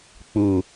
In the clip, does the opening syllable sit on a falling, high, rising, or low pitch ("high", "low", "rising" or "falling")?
low